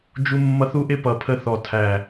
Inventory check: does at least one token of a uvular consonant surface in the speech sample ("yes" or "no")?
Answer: no